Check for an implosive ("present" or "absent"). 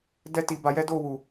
absent